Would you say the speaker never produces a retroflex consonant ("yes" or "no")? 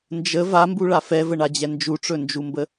no